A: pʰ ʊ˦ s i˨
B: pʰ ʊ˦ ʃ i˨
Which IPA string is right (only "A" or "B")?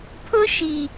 B